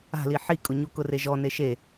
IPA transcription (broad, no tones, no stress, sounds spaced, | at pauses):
a̤ l i ħ i kʼ ʊ ɲ u k ʊ r e ʒ ɔ n e ʃ e